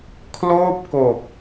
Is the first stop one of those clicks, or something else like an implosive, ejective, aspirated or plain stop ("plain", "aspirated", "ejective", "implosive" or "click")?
aspirated